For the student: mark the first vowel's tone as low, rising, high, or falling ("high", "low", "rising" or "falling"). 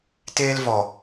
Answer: high